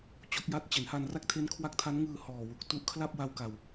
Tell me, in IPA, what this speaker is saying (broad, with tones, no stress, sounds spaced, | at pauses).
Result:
t͡ɕ o˦˥ k̚ j a˦˥ t̚ t͡ɕ e˩˦ n h a˧ n r a˥˩ k̚ tʰ e˦˥ n kʰ w a˦˥ k̚ tʰ a˦˥ n ŋ ɯː˧ h ɔː˨˩ w u˨˩ k̚ t u˦˥ ʔ kʰ l a˥˩ p̚ w a˧ w k a˨˩ w